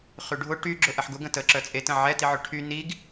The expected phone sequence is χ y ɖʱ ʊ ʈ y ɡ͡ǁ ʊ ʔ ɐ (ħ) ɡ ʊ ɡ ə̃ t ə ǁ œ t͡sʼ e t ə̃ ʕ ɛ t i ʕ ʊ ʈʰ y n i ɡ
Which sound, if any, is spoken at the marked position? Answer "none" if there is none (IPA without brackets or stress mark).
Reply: ħ